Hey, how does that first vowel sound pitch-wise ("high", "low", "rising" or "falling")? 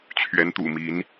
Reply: rising